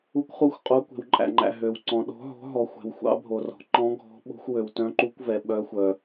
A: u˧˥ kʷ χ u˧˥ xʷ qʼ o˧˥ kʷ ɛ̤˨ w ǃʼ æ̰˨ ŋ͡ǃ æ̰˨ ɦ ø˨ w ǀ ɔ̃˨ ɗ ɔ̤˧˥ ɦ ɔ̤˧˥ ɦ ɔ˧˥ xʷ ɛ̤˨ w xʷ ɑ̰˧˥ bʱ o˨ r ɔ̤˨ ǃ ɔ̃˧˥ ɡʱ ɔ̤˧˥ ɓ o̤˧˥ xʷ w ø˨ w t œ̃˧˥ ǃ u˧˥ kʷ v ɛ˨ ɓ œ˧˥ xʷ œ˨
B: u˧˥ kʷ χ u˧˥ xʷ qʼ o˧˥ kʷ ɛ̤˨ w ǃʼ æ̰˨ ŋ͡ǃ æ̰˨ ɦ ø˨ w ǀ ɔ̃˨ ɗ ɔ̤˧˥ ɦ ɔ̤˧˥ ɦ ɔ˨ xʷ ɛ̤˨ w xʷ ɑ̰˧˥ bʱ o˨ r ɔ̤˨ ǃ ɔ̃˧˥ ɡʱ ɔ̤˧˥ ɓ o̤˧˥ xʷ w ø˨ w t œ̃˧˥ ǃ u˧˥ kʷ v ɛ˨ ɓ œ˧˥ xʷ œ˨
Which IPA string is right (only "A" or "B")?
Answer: B